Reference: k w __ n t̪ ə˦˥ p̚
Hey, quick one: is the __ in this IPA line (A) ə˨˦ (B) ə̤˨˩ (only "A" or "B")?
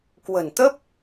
B